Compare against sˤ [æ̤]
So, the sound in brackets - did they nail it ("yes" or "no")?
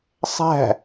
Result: yes